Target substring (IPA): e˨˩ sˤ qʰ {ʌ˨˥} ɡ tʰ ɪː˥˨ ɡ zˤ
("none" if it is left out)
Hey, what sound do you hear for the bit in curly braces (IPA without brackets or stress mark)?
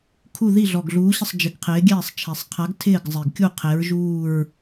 a˨˥